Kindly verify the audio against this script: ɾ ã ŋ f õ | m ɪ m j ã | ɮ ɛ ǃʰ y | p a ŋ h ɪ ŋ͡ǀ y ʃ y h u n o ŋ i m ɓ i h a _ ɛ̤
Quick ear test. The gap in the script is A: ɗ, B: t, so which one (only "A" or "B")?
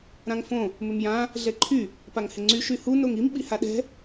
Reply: A